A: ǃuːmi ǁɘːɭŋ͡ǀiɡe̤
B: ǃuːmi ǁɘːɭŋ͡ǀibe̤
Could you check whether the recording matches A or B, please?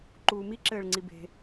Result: B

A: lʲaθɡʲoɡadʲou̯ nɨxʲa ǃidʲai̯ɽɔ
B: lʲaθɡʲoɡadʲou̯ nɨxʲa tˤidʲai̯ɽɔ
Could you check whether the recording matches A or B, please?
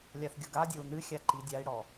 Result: A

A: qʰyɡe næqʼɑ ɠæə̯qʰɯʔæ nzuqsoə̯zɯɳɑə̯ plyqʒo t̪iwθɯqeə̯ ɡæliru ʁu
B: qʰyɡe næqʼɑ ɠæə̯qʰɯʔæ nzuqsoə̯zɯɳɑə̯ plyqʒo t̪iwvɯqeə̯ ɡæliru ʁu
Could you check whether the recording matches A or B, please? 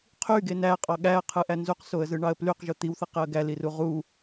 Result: A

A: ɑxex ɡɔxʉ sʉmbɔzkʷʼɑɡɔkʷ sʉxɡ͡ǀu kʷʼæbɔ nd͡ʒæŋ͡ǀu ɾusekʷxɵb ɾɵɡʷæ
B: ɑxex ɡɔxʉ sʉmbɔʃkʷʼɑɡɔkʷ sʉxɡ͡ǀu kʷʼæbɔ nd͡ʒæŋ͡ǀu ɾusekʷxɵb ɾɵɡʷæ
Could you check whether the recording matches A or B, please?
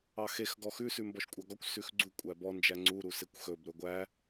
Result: B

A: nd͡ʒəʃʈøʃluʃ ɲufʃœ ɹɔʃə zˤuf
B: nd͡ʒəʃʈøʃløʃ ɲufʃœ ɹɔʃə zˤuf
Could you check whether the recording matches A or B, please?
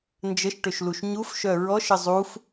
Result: A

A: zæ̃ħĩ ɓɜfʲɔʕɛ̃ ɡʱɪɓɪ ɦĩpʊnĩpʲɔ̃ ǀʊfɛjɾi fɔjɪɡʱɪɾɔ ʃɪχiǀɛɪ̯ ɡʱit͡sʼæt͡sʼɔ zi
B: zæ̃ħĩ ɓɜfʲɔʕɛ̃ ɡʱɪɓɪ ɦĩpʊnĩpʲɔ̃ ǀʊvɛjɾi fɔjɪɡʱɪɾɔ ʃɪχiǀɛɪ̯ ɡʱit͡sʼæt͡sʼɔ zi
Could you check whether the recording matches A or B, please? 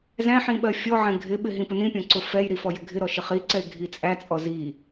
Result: A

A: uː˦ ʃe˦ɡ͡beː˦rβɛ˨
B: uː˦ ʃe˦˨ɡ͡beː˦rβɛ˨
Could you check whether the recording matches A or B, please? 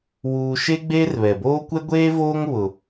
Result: A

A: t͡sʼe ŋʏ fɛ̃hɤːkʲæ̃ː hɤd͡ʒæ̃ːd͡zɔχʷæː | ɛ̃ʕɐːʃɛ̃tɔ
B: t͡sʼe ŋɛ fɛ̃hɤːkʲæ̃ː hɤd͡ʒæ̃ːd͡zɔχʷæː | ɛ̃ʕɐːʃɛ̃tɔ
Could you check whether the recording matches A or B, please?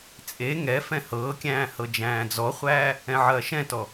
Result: B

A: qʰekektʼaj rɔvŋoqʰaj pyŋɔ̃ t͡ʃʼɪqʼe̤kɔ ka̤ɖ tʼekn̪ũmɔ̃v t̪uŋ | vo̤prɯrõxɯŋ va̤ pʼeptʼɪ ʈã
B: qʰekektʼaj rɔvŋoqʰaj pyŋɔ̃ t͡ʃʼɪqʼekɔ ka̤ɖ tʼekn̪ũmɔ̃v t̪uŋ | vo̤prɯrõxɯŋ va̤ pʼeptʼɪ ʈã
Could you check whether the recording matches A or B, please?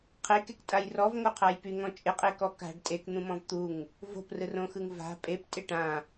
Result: B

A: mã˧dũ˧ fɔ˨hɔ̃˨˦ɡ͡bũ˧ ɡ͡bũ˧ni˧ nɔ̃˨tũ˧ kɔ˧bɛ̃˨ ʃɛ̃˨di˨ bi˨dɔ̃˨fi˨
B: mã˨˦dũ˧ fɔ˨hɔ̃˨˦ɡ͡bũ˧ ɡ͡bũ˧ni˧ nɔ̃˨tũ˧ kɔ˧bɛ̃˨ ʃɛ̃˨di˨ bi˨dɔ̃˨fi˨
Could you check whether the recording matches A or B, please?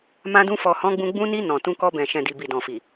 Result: A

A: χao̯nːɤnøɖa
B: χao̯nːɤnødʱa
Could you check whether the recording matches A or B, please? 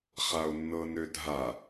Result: B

